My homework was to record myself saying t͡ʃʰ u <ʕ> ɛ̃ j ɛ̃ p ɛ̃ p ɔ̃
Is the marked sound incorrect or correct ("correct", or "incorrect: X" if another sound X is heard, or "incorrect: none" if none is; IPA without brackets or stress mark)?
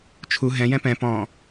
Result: incorrect: ɦ